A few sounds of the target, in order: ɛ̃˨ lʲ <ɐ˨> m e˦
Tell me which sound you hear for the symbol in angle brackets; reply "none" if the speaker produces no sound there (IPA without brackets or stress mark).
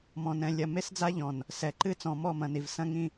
ɐ˨